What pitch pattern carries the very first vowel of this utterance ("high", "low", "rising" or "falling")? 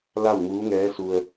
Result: falling